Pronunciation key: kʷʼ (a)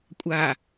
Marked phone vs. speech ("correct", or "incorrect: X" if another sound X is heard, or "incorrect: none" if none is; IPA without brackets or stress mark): correct